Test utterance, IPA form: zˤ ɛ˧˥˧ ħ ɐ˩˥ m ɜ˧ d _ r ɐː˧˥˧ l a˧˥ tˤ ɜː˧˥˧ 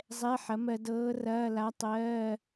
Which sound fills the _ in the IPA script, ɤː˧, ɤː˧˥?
ɤː˧˥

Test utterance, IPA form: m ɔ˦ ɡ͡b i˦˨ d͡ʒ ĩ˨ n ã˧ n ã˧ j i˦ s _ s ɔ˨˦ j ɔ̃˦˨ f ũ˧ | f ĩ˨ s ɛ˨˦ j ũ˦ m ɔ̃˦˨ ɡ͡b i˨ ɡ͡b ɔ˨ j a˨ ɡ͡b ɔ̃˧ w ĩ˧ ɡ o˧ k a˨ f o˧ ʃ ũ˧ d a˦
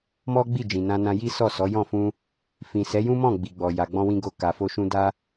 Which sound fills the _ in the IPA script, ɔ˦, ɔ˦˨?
ɔ˦˨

